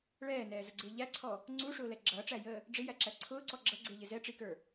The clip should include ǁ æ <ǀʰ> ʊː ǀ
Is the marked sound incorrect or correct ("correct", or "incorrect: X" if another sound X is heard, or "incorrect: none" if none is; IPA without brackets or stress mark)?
correct